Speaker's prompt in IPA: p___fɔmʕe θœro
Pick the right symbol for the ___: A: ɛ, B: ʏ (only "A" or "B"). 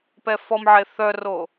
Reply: A